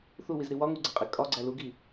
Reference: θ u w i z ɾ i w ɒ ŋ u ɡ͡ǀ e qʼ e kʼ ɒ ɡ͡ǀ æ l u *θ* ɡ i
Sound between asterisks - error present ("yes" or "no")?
yes